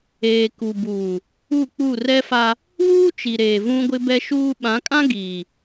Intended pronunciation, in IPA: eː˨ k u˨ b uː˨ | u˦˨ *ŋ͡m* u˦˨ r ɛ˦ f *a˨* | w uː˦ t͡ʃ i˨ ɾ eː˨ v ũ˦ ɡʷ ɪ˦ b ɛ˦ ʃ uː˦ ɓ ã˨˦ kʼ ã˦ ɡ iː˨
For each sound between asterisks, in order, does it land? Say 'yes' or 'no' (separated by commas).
no, no